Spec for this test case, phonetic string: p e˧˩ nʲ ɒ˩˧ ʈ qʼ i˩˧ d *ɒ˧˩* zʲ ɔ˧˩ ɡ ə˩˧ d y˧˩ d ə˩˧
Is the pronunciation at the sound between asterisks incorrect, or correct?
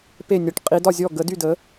correct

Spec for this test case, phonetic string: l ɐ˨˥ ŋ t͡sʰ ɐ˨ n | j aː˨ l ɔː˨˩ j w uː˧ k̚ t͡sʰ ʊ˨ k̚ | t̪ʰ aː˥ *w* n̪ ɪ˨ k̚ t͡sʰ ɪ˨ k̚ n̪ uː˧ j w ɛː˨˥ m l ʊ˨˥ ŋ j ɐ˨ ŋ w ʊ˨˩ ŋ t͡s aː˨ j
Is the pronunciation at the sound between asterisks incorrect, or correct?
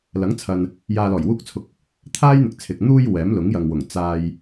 incorrect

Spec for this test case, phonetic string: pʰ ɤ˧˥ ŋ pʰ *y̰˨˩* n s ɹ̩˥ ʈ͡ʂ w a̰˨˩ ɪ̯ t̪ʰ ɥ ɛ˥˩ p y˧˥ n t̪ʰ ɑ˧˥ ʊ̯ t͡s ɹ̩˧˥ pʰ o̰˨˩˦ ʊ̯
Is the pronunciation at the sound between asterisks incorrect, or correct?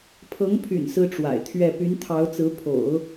correct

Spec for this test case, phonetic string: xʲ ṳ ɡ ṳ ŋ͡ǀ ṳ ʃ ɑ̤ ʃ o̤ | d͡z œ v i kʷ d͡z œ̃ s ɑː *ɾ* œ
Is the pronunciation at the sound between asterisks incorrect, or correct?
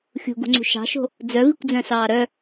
correct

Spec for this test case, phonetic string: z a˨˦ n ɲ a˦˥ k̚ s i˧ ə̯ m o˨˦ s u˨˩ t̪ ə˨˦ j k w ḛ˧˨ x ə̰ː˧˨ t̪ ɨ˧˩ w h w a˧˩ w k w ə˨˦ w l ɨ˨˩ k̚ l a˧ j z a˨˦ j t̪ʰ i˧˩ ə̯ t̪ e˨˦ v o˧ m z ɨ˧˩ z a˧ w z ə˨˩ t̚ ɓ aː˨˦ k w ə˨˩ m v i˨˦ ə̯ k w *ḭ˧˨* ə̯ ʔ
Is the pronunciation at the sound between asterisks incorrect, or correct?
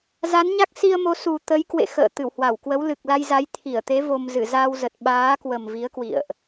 correct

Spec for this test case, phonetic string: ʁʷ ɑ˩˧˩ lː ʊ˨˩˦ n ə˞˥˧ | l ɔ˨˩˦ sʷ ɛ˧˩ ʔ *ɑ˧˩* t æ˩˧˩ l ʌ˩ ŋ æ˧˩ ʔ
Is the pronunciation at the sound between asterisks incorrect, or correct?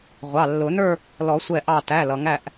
correct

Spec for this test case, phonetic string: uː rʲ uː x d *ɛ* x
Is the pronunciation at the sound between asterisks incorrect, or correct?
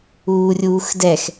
correct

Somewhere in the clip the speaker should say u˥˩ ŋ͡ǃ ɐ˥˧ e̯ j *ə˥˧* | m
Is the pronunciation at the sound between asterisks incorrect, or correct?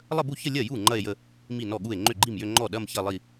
correct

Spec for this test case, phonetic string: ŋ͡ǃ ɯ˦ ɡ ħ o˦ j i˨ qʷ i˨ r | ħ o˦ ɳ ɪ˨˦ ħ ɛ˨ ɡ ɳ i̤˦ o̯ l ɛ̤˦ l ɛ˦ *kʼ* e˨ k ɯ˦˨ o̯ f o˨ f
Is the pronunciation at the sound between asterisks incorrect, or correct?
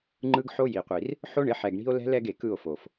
incorrect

